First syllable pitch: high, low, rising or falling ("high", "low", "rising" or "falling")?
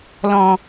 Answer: low